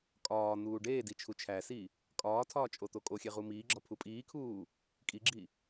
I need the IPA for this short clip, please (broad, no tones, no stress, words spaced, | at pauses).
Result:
kʼɒː n̪uːɖeːdi t͡ʃʰut͡ʃʰæsi | kʼɒːtʰɒː t͡ʃʼot̪okʼoxʲe ʁumiːɡ͡ǁɒ pʰupʼiːkʰuː | kʼiɡ͡ǁi